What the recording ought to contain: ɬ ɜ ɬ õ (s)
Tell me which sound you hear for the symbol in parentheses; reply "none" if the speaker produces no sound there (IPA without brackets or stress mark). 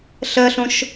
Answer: ʃ